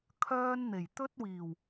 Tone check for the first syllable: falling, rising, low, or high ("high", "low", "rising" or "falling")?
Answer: high